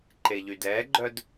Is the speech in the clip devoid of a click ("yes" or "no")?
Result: no